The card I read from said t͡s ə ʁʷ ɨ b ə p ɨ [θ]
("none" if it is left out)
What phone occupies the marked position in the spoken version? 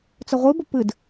d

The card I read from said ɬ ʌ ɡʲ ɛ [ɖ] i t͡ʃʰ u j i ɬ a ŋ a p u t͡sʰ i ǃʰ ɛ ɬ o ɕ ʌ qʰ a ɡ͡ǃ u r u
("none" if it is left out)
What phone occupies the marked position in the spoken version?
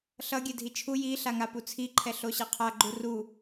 dʱ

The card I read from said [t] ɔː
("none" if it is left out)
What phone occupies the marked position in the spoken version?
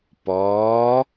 p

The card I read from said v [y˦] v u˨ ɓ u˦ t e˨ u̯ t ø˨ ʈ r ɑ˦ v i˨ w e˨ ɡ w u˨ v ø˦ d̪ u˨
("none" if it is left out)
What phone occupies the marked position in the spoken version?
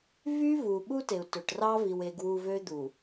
y˦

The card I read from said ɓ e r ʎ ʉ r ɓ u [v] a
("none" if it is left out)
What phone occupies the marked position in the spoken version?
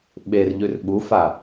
f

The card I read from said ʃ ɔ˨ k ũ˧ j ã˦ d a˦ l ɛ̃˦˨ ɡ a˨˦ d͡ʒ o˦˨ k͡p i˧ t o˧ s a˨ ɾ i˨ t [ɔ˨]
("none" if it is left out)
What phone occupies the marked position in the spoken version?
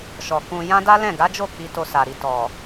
ɔ˨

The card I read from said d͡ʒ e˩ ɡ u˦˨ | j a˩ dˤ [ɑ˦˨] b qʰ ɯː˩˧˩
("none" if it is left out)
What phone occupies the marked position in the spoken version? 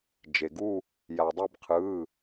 a˦˨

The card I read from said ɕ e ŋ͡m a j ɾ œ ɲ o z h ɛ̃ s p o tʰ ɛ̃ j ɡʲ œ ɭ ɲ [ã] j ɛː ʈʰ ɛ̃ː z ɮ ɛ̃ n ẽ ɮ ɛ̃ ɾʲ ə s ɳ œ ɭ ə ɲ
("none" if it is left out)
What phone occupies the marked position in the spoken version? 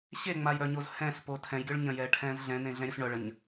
ə̃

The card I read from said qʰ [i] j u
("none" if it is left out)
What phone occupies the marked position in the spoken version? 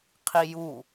i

